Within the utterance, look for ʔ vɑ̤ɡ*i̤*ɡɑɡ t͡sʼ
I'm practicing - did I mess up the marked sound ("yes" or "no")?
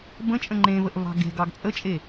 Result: yes